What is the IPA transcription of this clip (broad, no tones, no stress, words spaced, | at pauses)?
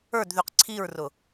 ə˞dðyq ǀʰiɹrʊ